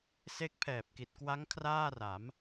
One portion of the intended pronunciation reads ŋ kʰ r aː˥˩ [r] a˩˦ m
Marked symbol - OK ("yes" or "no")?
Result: yes